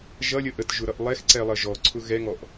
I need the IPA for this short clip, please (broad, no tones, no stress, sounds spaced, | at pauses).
ʒ ʌ lʲ ə ʔ ə t ʒ ʊ ɾ ʌ ʔ lˠ ɛ x ǀ ɛ lˠ ʌ ʒ ɔ ǀʰ ʊ ɣ ɛ ŋ ɔ ʔ